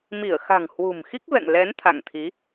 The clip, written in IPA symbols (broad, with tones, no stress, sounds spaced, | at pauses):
m i˧˩ ə̯ x a̤˨˩ ŋ h w ṳ˨˩ m x i˦˥ k̚ v ɛ̰˧˨ ŋ l ɛ˨˦ n t̪ʰ a̰˧˨ ŋ t̪ʰ i˨˦